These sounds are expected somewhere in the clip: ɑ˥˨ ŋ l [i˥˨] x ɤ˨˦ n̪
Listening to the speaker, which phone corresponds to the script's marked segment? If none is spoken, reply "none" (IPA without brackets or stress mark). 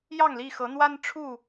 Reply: i˥˨